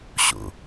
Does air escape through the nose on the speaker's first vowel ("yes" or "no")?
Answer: no